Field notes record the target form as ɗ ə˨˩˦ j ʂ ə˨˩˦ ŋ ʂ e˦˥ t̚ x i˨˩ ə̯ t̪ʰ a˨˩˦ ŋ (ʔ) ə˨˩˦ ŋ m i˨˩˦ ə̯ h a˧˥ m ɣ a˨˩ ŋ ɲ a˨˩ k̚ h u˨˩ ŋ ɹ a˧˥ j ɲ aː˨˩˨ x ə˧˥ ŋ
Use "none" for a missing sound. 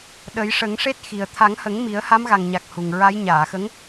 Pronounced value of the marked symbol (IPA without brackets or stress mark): h